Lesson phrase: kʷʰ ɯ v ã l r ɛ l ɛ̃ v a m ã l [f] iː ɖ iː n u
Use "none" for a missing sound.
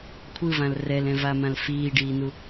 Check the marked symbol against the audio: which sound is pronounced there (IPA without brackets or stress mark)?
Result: f